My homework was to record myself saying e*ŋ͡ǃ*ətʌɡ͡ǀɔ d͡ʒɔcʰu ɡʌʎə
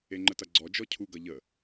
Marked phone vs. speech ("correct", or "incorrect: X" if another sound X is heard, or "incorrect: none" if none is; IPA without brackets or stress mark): correct